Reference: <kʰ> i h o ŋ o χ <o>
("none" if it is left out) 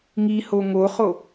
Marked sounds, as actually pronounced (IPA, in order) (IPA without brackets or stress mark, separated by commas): ŋ, o